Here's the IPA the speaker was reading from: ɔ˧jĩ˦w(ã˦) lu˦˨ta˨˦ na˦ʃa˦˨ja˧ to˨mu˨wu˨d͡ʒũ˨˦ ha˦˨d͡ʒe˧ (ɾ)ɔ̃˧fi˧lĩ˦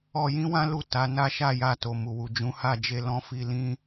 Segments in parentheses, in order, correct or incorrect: correct, incorrect

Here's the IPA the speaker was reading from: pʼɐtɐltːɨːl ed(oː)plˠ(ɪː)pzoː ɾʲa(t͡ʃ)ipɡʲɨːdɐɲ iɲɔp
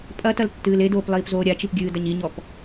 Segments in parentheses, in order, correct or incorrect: correct, incorrect, correct

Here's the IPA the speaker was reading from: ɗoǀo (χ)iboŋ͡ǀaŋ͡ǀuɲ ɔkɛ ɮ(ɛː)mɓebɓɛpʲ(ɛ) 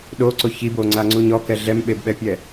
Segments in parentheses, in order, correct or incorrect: incorrect, incorrect, correct

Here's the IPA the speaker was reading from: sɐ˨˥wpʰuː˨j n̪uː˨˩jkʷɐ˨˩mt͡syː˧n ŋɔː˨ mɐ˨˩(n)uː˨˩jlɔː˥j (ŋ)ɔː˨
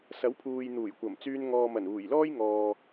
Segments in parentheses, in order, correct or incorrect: correct, correct

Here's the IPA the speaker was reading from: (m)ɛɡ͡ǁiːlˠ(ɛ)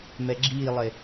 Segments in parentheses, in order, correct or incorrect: correct, incorrect

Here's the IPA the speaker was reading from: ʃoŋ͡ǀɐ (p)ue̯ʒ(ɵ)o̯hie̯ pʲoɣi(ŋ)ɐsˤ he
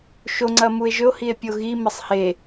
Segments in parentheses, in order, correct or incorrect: incorrect, correct, incorrect

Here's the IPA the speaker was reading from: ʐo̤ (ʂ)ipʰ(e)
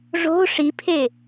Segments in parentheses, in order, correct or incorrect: correct, correct

